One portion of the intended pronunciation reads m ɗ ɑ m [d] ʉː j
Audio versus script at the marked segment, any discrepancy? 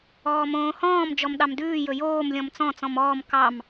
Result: no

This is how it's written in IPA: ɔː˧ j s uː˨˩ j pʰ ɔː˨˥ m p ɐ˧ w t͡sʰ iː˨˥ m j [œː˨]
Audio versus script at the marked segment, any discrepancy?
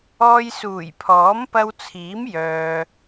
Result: no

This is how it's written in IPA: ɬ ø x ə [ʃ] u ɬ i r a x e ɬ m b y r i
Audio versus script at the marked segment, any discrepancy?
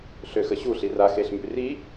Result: yes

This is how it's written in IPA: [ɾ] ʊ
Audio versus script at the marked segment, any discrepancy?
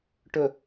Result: yes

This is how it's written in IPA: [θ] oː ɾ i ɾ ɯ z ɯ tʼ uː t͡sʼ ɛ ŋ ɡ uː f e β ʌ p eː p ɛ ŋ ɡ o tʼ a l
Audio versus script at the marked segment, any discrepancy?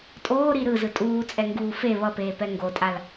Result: yes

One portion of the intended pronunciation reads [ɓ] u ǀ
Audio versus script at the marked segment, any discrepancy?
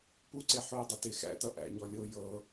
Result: yes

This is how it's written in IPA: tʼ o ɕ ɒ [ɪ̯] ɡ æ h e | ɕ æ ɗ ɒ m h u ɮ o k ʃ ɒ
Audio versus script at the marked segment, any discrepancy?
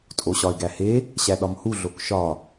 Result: no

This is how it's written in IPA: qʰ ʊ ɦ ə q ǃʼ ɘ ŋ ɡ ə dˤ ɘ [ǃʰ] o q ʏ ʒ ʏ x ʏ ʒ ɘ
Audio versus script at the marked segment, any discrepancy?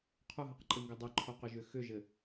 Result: no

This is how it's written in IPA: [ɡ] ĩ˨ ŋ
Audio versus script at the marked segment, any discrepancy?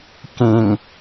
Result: yes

